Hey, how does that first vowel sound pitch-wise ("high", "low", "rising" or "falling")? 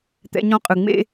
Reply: high